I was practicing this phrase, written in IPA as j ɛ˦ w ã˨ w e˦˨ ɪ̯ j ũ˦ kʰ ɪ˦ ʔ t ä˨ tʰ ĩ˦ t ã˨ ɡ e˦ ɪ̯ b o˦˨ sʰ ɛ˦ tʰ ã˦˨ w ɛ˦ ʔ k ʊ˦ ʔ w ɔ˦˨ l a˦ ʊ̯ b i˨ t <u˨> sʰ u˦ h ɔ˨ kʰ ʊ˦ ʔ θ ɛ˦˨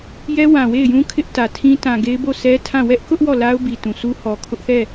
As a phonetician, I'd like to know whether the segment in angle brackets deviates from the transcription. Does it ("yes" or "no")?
yes